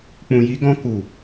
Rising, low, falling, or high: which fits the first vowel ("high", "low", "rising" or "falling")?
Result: low